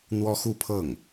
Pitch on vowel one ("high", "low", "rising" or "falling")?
high